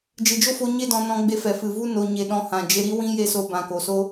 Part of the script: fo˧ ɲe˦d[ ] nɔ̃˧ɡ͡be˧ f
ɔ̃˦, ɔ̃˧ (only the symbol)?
ɔ̃˧